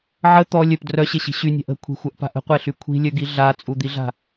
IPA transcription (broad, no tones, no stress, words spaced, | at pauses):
ʕə t̪ɔ lʲœp drœɕeɕi̤ ɕynʲa̤ʔ ə̤kʷʰi̤xʷœʔpa̤ʔ ə̤qʷeɬy kʷʰi̤lʲœɡi ɮat͡sʼud̪iɮa̤